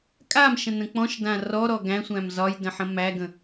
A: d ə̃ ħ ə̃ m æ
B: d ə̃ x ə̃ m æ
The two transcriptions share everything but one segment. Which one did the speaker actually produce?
A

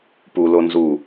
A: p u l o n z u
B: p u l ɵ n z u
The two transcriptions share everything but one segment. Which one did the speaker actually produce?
A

